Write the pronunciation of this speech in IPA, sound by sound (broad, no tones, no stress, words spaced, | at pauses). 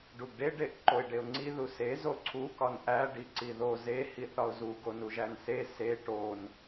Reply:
ɖuɡɖe ɖeʔǃoɪ̯ɖeʊ̯ŋ͡ǀi ðuse zoǀʰu kɒnʔæ ɖiǀiðo ze hiθɒʊ̯zu ɡonuʒænse se ʈon